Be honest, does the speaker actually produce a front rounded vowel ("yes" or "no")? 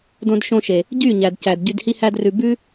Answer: yes